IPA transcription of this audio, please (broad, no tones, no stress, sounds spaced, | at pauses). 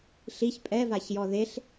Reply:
ɬ i ç pʼ ɛ v a ç j ɔ ð e ɬ